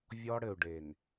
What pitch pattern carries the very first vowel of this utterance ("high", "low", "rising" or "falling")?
high